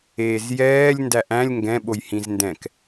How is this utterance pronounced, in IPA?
eː z j ɛː lʲ n d æ ʔ æ̃ lʲ ŋ ɡ ɛ̃ ɓ o j h ĩ z n d ɛ̃ k

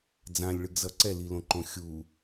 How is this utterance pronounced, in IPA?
d͡z ã lʲ ɭ ɯ ɡ z ʌ ǀ ɛ l i l õ ǃ õ xʲ u

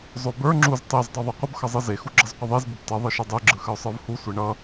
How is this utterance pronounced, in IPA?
zˤ o b ə˞ ŋ͡ǁ u z tˤ e z dˤ o ðˤ ɛ qʷ ə b x ʌ zˤ ɯ z e x u ɡ͡ǁ ʌ z qʷ ə ðˤ e z b ə b t ʌ ðˤ ɯ ʃ ʌ dˤ ɯ ɡ͡ǁ ɯ x ə ʊ̯ sˤ ə˞ v h u sʷ e ɳ ʌ

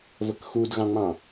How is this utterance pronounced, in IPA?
v ə k x u d ɣ ɑ̃ ŋ͡m ɑ̃

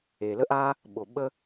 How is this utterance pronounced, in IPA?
e˩ l ə˥ ʔ a˥ | ɓ o˩ ɓ ə˥

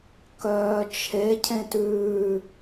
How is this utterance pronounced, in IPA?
k œː t͡ʃʰ e cʰ ẽ t ʉː

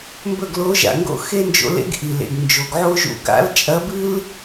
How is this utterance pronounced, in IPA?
m b ɵ˥˨ ɡ l o˧˥ ʒ a̰˨˩ ŋ ɡ o̰˥ x e˥ n d͡ʒ o̰˧˥ l ḛ˥ ɡ ʔ i˨˩ l ḛ˨˩ ɡ n d͡ʒ o˨˩ ɡ ʕ o˥ ʒ ṵ˥˨ ɡ a̰˧˥ l t͡ʃʼ ɐ˧˥ b ɨ˥ l

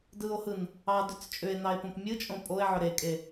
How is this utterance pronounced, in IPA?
d ɯ o̯ h ɯ n | ɑ d ʏ t͡s t͡ʃʼ ʏ e̯ n ɑ e̯ p õ p mʲ ɯ t͡ʃʼ õ pʼ o e̯ ʕ ʏ ɾ e kʼ e

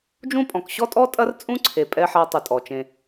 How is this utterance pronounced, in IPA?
d͡ʒ ũ˦ pʼ ɔ̃˨ k ɕ ɔ˦ tʼ ɔ˦ tʼ ɐ˦ r t͡sʼ ũ˦ ǀʰ e˨ pʼ ɛ˦ ħ a˦ tˤ ɨ˧ tʼ ɔ˨ t͡ʃ ẽ˧

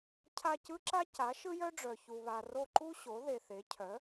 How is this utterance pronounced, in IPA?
cʰ a˦˨ c ɯ˥ ǁ a˥ c a˩˥ ʃ ɯ˥ j œ˥ ɖ͡ʐ œ˨ ç u˨ β a˨ r o˦˨ ǃ u˥ ɕ o˩˥ ð e˨ θ e˩˥ cʰ œ˩˥

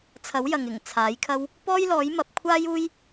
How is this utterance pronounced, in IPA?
t͡sʰ ɐ˨˥ w j ɐ˨ ŋ ɪ˨˩ ŋ t͡sʰ aː˨˥ j kʰ ɐ˥ w | p ɔː˥ j l ɔː˨˥ j m ɐ˨˥ p̚ kʷʰ aː˥ j uː˥ j

